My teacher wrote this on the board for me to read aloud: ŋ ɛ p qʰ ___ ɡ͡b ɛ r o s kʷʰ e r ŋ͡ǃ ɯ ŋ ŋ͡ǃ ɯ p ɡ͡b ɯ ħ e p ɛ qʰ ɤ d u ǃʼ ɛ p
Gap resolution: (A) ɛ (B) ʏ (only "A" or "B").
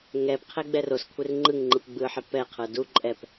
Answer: A